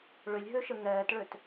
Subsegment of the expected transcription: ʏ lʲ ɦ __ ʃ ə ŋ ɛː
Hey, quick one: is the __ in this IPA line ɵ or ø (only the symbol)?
ø